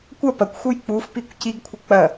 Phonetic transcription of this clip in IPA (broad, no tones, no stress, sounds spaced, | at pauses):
kʷ ɐ p ɐ kʷ x u j k͡p u f p i kʷ c i ɡ kʷʰ ɨ k͡p ɐ